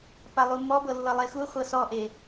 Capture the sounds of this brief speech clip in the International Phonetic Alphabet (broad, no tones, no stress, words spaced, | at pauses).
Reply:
palˠumɔ bɤlːɤlˠexu χʷɤsɔʔe